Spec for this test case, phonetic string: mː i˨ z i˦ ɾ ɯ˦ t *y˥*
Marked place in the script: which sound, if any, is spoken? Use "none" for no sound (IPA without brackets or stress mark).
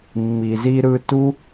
u˥